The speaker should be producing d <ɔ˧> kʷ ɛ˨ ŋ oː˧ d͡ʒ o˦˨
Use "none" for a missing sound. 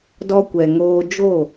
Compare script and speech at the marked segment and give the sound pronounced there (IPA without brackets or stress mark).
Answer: ɔ˧